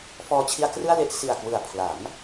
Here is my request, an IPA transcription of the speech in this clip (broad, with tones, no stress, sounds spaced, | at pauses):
f ɔː˧ t͡ɕʰ i˧ a̯ k r ɯ˥˩ a̯ l e˥˩ ʔ s i˨˩ a̯ k w ɯ˨˩ a̯ pʰ l a˩˦ m